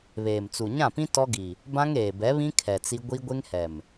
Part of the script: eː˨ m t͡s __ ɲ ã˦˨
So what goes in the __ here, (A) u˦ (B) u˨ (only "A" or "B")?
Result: B